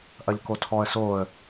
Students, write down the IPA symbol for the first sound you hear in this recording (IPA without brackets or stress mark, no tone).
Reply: ʔ